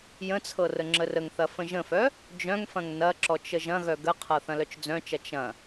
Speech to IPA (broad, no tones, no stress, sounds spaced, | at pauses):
j ə̃ t͡sʰ ɤ r ə ŋ͡ǁ ə r ə ŋ θ ɐ f ə̃ ʒ ə̃ f œ | d͡ʒ œ̃ ŋ f ɐ̃ ŋ n ɐ ǁ ɔ t͡ʃ ə ʒ ɐ̃ ɣ œ ɡ ə qʰ ɤ θ ɐ̃ l œ t͡ʃ d͡z œ̃ t͡ʃ ɐ t͡ʃ ɐ̃